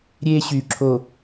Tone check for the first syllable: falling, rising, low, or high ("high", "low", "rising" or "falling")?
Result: high